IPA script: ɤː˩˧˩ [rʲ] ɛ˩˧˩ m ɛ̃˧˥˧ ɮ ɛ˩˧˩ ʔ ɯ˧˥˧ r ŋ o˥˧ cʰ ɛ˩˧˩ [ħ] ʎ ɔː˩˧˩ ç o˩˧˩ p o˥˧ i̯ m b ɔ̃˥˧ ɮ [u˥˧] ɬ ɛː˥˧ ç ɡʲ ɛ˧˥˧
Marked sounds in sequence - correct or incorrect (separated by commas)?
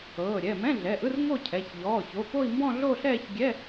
incorrect, incorrect, incorrect